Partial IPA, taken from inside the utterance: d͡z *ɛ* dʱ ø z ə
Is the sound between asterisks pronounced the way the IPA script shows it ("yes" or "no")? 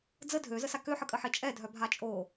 no